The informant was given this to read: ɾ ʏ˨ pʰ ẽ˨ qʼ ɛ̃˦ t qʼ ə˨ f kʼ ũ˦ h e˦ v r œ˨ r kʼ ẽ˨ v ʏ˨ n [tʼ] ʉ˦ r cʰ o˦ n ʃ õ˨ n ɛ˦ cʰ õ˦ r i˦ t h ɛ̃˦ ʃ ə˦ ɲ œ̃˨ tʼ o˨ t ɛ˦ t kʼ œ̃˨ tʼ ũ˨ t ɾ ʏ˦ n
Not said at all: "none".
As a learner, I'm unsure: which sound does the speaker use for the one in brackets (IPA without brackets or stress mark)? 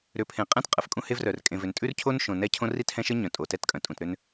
tʼ